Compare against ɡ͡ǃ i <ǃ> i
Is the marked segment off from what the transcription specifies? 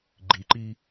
no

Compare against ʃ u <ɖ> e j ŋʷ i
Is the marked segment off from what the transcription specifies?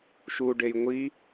no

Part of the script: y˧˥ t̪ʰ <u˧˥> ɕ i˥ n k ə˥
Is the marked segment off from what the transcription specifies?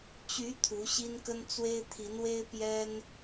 no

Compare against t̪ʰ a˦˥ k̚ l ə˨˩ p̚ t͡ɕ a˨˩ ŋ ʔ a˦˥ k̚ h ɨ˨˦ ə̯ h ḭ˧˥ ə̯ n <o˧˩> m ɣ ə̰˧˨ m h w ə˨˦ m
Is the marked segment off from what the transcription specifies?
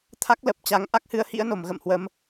no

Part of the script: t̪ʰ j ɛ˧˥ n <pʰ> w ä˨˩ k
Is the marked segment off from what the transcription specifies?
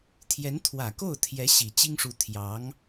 yes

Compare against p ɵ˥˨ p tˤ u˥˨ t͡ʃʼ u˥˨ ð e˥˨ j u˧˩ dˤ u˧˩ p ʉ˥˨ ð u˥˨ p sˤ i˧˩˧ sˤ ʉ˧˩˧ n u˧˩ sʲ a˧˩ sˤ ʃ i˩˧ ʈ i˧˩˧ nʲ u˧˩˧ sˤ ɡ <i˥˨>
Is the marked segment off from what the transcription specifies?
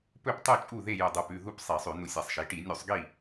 no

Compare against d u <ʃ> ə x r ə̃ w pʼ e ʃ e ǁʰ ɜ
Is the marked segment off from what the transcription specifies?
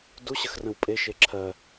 yes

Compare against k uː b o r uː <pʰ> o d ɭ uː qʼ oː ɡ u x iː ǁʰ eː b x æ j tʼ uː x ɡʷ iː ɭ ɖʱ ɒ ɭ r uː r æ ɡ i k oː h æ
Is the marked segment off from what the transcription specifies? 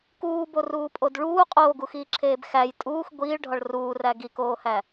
yes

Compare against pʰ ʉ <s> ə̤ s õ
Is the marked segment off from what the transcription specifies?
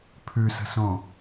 no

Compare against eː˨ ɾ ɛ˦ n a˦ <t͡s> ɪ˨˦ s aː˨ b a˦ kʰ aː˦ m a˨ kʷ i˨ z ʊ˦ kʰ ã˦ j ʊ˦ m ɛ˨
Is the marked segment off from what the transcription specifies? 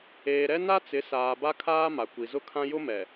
no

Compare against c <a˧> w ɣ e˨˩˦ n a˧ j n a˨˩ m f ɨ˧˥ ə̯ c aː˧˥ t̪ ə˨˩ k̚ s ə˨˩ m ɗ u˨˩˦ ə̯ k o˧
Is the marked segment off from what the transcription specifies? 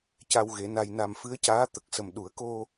no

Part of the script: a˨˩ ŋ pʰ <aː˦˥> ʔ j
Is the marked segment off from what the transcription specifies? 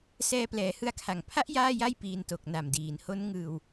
yes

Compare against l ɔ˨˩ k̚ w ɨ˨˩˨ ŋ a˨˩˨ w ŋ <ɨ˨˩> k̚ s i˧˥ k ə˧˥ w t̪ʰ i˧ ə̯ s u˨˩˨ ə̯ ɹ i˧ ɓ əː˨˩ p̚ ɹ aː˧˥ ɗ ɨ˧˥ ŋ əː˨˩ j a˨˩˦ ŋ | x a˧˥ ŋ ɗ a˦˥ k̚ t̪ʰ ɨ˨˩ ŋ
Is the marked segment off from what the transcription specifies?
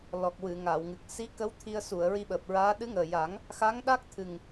no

